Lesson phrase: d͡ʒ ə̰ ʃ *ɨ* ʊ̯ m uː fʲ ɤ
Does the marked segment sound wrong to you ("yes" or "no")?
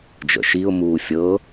yes